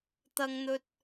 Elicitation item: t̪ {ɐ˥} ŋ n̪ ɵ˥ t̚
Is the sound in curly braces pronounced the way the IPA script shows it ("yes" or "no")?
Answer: yes